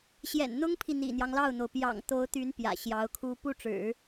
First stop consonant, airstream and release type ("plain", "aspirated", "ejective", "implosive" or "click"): aspirated